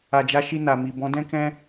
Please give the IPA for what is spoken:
a˧ d͡ʒ a˦ ʃ i˧ n a˨ m i˨ b ɔ̃˨˦ d ɛ̃˦ k ɛ̃˦

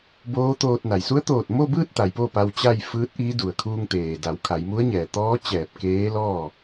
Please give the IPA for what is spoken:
b oː˧˥ t̪ oː˧ t̚ n a˩ j s u˧˥ ə̯ t̪ oː˧˩ t̚ m o˥˨ b ɯː˥˨ t̚ t̪ a˩˧ j p oː˥˨ p a˧ w t͡ɕ a˥˨ j f ɯː˧˥ t̚ ʔ iː˧˥ d u˩ ə̯ kʰ uː˧ ŋ t̪ eː˩ d a˩˧ w kʰ a˩˧ j m u˧˥ ə̯ ɲ ɛː˩ t̪ ɔː˧˥ t͡ɕ ɛː˧˩ p̚ k eː˧˥ l ɔː˥˨

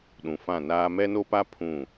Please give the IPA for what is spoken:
ɗ ũ˨ f ã˦˨ n aː˦ m ɛ˦ n o˦ p a˦ pʰ ũ˦˨

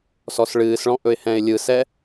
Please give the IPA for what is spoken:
s ɔ s ɭ ɨː s ɭ ɔ̃ ʔ ɵ ɪ̯ h ɛ̃ ɪ̯ lʲ ɯ s ɛ

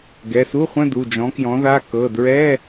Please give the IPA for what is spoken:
ɡ ɛ˩˧˩ s u˧˥˧ χʷ ə̃˧˥˧ d u˩˧˩ d͡ʒ ɔ̃˨˥ k j ɔ̃˨˥ ð a˧˥˧ k ɤ˩˧˩ d ɹ ɛ˧˥˧

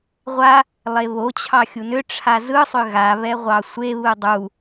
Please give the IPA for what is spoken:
ʁʷ a | lˠ e β o t͡ɕʰ ɑ xʲ u n ʏ ʈ͡ʂʰ a z ɯ sˤ ʏ ɣ a β ɛ ʁʷ ɑ sʷ e β ɯ dˤ u

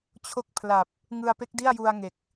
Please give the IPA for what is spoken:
t͡ɕʰ o˦˥ k̚ pʰ l a˨˩ p̚ | ŋ ɯ˧ a̯ p e˦˥ k̚ d i˥˩ a̯ j u˧ a̯ ŋ e˨˩ k̚

